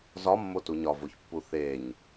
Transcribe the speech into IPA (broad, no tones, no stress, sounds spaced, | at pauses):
z ɒ mː o t u ɲ ɒ v o ç pː u θ e ɲ